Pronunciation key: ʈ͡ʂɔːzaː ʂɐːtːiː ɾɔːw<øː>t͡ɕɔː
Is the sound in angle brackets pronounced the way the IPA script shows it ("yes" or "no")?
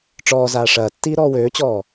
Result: yes